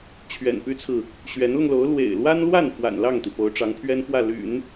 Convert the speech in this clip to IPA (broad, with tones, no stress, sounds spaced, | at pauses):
t͡ɕʰ ɥ ɛ̰˨˩ n p y˥ t͡sʰ ɹ̩˨ | ɕ ɥ ɛ˧˥ n l ʊ˧ ŋ l o˧˥ ʊ̯ l w ḛ˨˩ ɪ̯ l w a˥ n l w a˥˩ n f w a̰˨˩ n l ɑ˥˩ ŋ t̪ i˩ p o˧˥ ʊ̯ ʈ͡ʂ ɑ˧˥ ŋ pʰ ɥ ɛ˥ n f w ä˥˩ l y̰˨˩˦ n